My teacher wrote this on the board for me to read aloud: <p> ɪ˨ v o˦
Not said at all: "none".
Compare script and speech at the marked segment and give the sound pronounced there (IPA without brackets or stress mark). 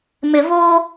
m